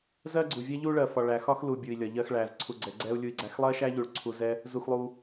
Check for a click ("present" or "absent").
present